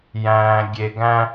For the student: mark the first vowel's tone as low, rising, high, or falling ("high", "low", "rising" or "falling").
low